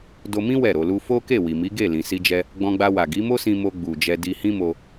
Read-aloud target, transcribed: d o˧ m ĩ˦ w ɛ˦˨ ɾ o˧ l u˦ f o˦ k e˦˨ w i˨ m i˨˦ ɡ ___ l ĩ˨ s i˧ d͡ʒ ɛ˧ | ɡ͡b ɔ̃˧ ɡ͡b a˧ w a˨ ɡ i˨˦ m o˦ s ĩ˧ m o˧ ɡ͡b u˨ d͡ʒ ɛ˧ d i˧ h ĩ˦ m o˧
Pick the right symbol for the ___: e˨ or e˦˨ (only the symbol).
e˦˨